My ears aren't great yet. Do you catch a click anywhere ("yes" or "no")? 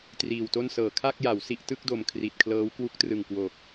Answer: no